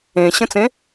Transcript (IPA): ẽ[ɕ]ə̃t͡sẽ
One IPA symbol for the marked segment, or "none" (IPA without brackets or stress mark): ɕ